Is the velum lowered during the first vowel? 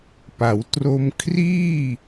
no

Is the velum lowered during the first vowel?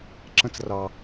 yes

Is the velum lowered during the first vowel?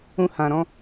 yes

